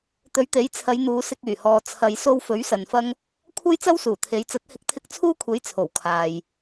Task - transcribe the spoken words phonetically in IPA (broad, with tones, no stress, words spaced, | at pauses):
t̪ɵ˨˥ɥt̪e˨˥jt͡sʰɐ˨˧j n̪uː˨˧sɪ˧k̚yː˨˩ hɔː˨ t͡sʰɐ˨jso˧w fɵ˨˥ɥ sɐ˨nfɐ˥ŋ | kʷʰɐ˥jt͡sɐ˥wsuː˨˩ t̪ʰe˨˧j t͡sɐ˨˥t̚hɪ˨˥k̚t̪ʰɪ˧k̚ t͡sʰuː˥kʷʰe˨˥jt͡sʰo˨˩w kʰaː˨j